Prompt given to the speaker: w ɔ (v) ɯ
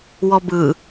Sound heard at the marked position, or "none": b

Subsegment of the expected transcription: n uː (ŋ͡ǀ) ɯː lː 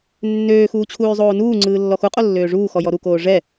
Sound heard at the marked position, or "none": ŋ͡ǀ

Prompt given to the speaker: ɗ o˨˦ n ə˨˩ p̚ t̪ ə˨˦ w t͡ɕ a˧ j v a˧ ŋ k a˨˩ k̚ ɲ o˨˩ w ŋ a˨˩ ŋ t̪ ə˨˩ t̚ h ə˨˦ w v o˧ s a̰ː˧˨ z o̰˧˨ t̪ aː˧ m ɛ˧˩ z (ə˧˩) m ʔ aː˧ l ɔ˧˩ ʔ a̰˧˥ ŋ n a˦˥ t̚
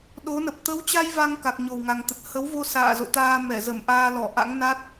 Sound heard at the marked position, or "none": ə˧˩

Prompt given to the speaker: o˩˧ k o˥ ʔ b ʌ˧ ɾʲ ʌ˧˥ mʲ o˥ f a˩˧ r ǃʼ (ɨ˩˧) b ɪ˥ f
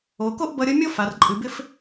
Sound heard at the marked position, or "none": ɨ˩˧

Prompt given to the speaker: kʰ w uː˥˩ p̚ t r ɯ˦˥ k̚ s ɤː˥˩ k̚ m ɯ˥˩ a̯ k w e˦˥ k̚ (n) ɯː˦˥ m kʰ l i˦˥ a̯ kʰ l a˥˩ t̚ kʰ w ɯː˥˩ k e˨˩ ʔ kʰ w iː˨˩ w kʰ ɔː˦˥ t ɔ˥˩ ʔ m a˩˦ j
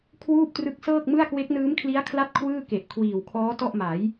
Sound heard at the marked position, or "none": n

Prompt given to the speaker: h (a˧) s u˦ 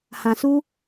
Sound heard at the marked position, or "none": ã˧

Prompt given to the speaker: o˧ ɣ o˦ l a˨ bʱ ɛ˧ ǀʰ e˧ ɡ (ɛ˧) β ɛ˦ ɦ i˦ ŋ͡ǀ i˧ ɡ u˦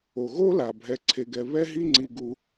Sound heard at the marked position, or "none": ɛ˧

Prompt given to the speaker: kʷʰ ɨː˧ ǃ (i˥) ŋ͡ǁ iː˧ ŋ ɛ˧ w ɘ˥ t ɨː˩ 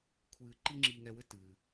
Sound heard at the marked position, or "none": i˥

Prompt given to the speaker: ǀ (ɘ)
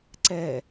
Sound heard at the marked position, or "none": ɛ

